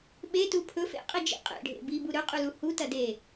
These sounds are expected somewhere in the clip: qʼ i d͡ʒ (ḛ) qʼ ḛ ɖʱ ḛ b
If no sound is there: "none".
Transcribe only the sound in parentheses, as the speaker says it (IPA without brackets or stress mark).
ḭ